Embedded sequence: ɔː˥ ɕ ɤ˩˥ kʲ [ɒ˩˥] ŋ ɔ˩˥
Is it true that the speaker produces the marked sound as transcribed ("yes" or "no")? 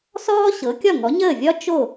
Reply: no